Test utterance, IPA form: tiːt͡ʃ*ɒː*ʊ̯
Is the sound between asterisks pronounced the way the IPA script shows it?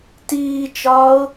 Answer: yes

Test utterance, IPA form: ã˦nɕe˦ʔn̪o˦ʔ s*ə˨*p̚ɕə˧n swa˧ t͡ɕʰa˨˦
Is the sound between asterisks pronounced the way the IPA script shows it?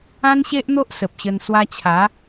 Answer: yes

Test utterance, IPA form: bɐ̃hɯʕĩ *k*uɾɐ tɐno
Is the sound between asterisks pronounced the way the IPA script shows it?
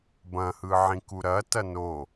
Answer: yes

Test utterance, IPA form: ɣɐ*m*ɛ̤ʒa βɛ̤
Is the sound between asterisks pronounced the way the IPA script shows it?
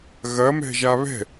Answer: yes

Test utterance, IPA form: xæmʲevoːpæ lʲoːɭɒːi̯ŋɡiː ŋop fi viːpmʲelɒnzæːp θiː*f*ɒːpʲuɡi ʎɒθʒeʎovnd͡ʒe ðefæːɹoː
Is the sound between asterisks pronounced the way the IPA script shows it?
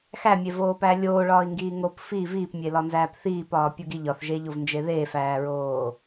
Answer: no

